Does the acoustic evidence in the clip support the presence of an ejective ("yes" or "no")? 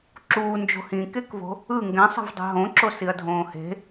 no